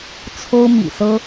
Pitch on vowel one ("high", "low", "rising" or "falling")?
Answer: high